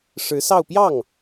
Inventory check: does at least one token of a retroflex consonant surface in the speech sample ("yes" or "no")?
yes